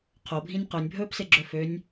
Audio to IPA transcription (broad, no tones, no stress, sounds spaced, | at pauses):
qʰ o bʱ ĩ nʲ q œ nʲ bʱ ɵː p s e ɡ͡ǁ ɵ f ø nʲ